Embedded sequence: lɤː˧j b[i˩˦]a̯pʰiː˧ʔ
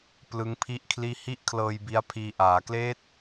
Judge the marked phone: incorrect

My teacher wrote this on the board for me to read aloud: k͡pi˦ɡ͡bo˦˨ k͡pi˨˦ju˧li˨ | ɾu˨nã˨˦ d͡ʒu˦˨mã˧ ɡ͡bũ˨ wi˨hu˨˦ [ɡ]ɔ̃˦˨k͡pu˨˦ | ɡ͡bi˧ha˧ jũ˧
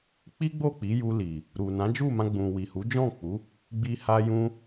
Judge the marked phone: incorrect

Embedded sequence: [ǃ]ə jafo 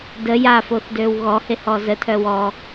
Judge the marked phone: incorrect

